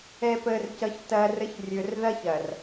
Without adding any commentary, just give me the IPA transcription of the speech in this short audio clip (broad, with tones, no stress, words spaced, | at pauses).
ɛ˨pəː˨r cʌ˨çtːɐː˨rə˨˦ç rʲɵ˨rðɐ˦ç ɐ˨r